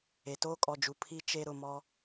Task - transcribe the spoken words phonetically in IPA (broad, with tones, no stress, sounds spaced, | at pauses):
e˨ t oː˦ kʼ ɔ˨ d͡ʒ u˨ pʰ i˦ t͡ʃ e˦ ɾ ʊ˨ m ɔ˦